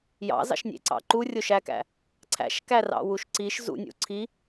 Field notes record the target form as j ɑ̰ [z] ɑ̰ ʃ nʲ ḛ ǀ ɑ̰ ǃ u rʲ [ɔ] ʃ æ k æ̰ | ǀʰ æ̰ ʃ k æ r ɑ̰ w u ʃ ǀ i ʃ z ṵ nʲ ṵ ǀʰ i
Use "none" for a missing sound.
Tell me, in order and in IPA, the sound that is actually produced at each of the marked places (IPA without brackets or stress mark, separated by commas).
z, o